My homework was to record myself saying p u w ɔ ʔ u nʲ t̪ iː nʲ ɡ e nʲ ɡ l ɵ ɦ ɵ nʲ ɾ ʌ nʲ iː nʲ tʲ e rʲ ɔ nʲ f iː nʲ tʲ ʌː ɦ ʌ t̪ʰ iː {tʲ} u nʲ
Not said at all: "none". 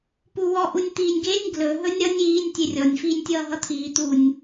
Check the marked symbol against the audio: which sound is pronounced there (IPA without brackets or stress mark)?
t̪